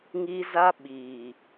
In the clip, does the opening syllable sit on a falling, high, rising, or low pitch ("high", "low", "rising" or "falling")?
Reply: high